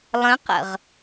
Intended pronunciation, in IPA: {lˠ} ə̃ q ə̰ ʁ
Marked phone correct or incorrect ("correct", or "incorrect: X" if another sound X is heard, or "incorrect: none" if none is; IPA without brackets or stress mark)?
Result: correct